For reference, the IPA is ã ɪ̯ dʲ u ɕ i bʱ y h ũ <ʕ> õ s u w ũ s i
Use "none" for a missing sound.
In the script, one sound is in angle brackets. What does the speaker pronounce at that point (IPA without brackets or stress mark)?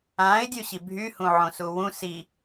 ʕ